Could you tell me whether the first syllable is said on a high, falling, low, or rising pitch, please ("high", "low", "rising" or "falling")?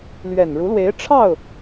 low